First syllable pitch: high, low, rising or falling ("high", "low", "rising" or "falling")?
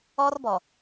high